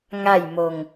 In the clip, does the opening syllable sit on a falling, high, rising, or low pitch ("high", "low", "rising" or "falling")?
falling